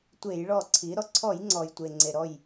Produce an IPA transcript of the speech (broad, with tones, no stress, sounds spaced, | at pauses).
tʷ e˧˩˧ j ɭ ɔ˧˩ ǀʰ i˩˧ ɾ ɔ˩ ǀʰ ɔ˧˩˧ j ŋ͡ǀ ɔ˩ j tʷ e˩ ŋ͡ǀ e˩ ɾ ɔ˧˩ j